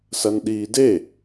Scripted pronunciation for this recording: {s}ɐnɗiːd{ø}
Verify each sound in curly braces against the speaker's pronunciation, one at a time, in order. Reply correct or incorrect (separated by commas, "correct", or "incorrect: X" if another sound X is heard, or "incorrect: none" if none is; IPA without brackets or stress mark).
correct, incorrect: e